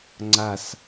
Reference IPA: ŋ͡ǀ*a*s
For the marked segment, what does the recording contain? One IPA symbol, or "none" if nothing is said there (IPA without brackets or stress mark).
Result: a